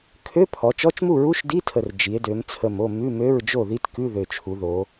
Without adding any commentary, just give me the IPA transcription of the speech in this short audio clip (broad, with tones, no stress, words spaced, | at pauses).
kʰø˧˥˧ pʰɔ˩˧t͡ʃɔ˧˥˧t͡ʃmu˥˨ ɹu˧˥˧ʃdi˧˥˧tʰə˨˩r d͡ʒi˩˧e̯dø˩˧m t͡sʰə˨˩mo˥˨ mʉ˧˥˧mø˧˥˧ɹd͡ʒo˥˨ði˦˥t kʉ˧˥˧ðø˨˩t͡ʃʰu˩˧ðo˩˧